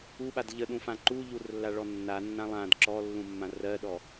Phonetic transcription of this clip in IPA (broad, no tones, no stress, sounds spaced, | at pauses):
u ɓ a d ʎ ə ɗ ũ f ã ǃ u ʎ u r lː a ɭ ɔ nː a nː ã lˠ ã d ǁ ɔ lː ũ mː ã r ɜ ɗ ɔ